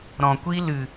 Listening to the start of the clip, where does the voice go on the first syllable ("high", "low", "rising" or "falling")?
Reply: low